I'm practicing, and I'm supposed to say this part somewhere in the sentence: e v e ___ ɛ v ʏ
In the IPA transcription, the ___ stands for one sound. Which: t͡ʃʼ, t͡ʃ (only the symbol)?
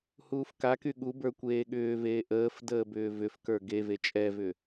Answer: t͡ʃʼ